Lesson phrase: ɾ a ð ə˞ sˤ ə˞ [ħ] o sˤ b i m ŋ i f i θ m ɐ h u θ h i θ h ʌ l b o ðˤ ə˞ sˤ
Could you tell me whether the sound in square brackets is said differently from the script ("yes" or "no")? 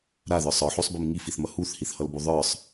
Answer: no